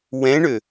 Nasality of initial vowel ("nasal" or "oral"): nasal